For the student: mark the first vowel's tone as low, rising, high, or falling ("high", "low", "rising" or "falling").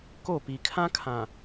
falling